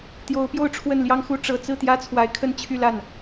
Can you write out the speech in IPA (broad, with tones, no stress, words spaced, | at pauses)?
t̪jo˧˥ʊ̯pjo˥˧ʊ̯ ʈ͡ʂʰwə˥˩nljɑ˥ŋxu˥ ʈ͡ʂɤ˨˩t͡sɹ̩˥˩ t̪jä˥t͡sʰwa˧˥ɪ̯ kʰə˥˧nt͡ɕʰy˥˧la˥˩n